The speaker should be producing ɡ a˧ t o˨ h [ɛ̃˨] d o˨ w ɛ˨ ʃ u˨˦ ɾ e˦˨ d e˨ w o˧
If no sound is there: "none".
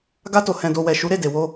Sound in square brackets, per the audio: ɛ̃˨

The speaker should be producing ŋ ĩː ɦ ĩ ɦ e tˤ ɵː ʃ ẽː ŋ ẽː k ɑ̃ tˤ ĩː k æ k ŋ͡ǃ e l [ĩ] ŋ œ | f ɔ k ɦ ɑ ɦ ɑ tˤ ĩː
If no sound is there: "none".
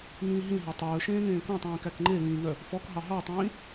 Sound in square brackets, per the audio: ĩː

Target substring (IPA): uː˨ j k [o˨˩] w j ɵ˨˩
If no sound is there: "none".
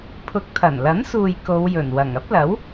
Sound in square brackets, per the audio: o˨˧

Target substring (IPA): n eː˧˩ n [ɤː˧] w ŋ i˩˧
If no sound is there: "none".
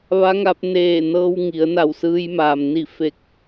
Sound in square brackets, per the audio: ɤː˧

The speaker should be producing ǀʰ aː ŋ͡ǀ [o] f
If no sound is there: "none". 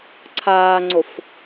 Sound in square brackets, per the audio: o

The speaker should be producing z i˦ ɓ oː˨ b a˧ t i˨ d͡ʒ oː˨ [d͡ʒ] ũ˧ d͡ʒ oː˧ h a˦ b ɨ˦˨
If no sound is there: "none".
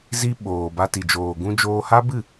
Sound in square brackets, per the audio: ɡ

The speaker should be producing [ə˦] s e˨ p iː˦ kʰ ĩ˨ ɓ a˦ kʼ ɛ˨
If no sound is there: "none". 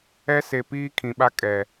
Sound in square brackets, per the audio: ɛ˦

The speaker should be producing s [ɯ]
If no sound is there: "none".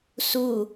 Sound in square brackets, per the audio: u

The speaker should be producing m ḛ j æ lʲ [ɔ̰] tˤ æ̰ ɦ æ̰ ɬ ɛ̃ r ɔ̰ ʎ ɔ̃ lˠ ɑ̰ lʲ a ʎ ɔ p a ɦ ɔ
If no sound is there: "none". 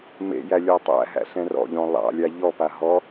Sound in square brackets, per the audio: ɔ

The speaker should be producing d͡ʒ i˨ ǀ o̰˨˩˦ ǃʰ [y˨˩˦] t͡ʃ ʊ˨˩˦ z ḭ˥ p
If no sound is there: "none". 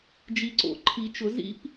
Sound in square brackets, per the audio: i˨˩˦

